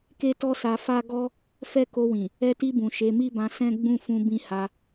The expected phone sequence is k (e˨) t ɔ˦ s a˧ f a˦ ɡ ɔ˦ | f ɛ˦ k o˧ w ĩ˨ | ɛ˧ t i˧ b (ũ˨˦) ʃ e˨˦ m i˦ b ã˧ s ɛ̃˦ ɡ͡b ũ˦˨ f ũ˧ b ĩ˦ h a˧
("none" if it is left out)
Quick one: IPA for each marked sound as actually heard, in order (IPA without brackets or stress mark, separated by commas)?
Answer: e˦, ũ˨